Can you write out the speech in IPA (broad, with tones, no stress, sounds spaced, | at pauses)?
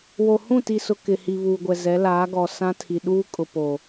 w o˨ h ũ˦˨ t i˨ s ʊ˦ k ɪ˨ h i˨ β uː˨ ɡʷ ɛ˨ z ɛ˨˦ l aː˨˦ ɡ ɔ˨ s ã˦ tʰ i˨ ɗ uː˦ kʼ ʊ˨ p o˨